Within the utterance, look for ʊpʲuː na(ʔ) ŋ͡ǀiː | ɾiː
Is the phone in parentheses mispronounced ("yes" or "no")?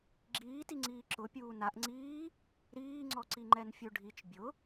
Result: no